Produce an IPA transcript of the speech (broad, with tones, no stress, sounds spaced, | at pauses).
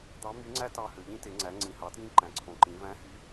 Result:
d̪ ɑ˧˥ m y˧˥ ŋ͡ǀ æ˥ t ɑ˧ h ø˩ ʎ ĩ˧˥ t e˩˧ ŋ͡ǀ æ˩˧ ŋ͡ǀ ĩ˩ h ɑ˩˧ t j ĩ˧˥ ǃ æ̃˩ ǀʰ õ˩ ǃ ĩ˩˧ v æ̃˧˥ h y˧˥